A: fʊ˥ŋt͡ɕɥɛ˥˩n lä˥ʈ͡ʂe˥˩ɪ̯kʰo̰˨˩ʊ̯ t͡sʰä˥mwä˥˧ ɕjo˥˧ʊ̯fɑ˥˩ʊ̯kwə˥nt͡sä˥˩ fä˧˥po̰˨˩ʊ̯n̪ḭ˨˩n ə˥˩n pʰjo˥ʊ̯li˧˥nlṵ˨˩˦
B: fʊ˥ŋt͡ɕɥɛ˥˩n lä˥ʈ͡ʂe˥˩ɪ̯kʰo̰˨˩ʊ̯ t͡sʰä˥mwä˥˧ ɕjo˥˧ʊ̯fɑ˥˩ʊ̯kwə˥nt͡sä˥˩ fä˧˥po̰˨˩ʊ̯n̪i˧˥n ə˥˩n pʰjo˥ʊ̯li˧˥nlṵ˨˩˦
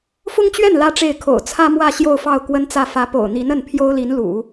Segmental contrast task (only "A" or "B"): B